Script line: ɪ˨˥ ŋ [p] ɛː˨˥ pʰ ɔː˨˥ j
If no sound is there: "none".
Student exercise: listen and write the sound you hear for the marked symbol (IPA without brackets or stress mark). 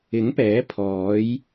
p